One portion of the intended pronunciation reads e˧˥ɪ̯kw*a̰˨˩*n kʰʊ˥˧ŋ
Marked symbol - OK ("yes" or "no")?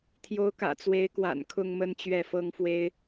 yes